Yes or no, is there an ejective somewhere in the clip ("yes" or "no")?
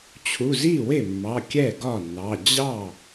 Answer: no